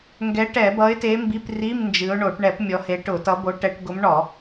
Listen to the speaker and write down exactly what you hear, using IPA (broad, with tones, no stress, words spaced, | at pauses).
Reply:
ŋɡɛ˨˦ʈɛ˧˩˧ bʌ˨˦ɪ̯te˨˦ mbi˧˥˧pri˧˥˧mnd͡ʒɨ˨˦ʊ̯ɳo˧˩˧ʈ ɳɛ˧˩˧p mʲɔ˨˦he˨˦ ʈʊ˧˩˧tʌ˨˦bo˨˦ ʈɛ˨˦ʈ ɡʊ˨˦mɳɔ˧˩˧